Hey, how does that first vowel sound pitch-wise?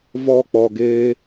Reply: high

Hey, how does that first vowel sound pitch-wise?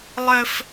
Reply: high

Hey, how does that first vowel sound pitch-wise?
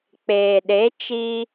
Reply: low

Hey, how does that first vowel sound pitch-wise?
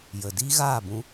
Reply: low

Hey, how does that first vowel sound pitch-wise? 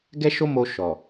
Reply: high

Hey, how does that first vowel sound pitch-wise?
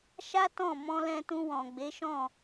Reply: high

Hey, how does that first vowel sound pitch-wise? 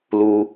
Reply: low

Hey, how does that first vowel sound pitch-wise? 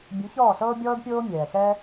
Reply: rising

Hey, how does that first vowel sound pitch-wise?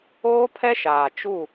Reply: high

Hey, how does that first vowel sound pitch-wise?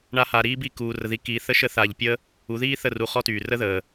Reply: high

